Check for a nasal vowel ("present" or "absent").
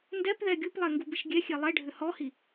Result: absent